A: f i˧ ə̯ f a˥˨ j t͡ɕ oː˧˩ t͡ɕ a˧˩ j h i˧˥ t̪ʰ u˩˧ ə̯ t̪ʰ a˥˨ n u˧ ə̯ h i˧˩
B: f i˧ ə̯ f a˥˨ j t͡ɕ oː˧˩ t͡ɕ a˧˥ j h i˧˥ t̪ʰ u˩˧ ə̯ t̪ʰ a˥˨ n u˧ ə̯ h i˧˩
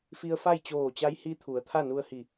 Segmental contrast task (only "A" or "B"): B